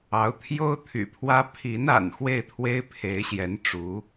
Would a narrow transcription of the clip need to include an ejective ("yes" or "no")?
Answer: no